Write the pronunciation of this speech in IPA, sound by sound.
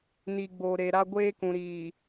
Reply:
n i˨ ɡ͡b o˨ ɾ e˨ ɾ a˦ ɡʷ eː˦ k ũ˨ ɾ iː˨

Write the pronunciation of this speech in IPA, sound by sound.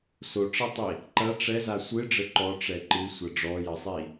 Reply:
s o ʈ͡ʂ ɐ tˤ i | ǃ ɐ ʈ͡ʂ ɛ z a sʷ ɨ ɖ͡ʐ ɘ ǃ ɔ ʈ͡ʂ ɛ ǃ ɨ sʷ ɐ ɖ͡ʐ ɔ j ɐ sˤ i

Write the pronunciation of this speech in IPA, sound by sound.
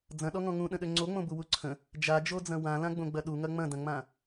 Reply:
d͡z ɐ̃ ɗ ɔ ŋ ɔ̃ ŋ ũ ɗ ə̃ ɗ ø ŋ͡ǀ o ŋ͡m õ b u w u ǀʰ ə̃ | d͡ʒ a d͡ʒ o d͡z ɐ̃ w ã l ã ɡ͡b õ ɡ͡b ɐ ɗ u ŋ ɐ ŋ͡m ɐ̃ d ɐ̃ ŋ͡m ã

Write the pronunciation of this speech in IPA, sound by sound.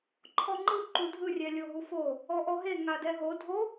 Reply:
ǃʰ ɔ ŋ͡ǃ ɯ ǃ u dʱ ɯ rʲ ɛ lʲ o ɦ u f o | ɔ ʔ ɔ ɦ e ŋ a d ɛ ɦ o dʱ o

